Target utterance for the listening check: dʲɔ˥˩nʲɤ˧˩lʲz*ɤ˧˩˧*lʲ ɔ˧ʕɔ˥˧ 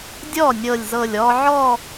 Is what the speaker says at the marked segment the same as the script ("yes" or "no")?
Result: no